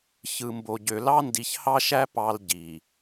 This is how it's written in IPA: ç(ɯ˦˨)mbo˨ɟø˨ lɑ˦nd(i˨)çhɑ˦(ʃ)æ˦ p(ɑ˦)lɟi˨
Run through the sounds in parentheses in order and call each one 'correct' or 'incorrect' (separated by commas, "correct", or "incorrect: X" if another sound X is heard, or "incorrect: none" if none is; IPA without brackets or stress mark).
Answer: incorrect: ɯ˨, correct, correct, correct